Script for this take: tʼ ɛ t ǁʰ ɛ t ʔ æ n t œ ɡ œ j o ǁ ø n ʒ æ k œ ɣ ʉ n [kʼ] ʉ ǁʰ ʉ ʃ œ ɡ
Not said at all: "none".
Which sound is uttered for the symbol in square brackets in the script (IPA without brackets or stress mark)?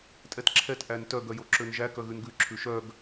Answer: ɡ